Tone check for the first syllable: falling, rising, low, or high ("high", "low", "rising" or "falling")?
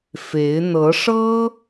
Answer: rising